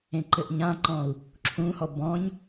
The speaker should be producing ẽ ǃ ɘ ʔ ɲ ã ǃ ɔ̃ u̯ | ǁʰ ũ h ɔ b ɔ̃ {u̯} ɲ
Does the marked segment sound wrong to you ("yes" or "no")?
yes